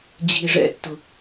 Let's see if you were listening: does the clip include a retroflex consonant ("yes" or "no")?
yes